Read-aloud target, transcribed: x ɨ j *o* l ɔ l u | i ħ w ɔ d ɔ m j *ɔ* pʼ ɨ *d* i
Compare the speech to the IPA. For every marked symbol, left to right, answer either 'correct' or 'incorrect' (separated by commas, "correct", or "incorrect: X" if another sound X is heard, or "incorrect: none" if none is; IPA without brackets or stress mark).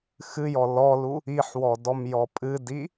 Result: incorrect: ɔ, correct, correct